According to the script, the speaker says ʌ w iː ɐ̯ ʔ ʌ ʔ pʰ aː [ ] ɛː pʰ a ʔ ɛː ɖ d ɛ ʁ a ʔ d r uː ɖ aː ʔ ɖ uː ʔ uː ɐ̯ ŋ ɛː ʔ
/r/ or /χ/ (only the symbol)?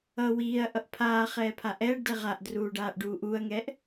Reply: χ